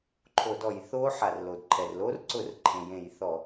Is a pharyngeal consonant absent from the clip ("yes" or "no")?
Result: no